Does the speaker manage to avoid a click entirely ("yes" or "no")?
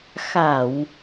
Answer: yes